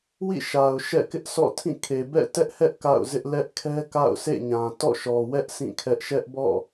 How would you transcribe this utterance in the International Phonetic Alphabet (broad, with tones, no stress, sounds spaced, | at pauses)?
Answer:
w ḭ˦˨ ʃ a˨ ʊ̯ ʃ ɛ̰˦˨ k ɪ˦ ʔ sʰ ɔ̰˦˨ tʰ ĩ˦˨ kʰ e˨ b ɛ̰˦˨ t ɛ˦ ʔ h ɛ˦ ʔ k a̰˦˨ ʊ̯ z ɪ˦ ʔ l ɛ˦ ʔ kʰ ɛ˦ k a̰˦˨ ʊ̯ sʰ ḛ˦˨ ɲ ã˨ t ɔ̰˦˨ ʃ ɔ˨ w ɛ˦ ʔ sʰ ĩ˦˨ kʰ ɛ˦ ʔ ʃ ɛ˦ ʔ b ɔ̰˦˨